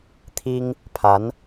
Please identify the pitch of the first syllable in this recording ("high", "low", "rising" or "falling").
high